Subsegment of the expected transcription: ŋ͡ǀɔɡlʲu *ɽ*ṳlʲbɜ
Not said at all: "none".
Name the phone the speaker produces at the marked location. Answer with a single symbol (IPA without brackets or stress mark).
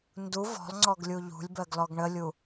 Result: ʎ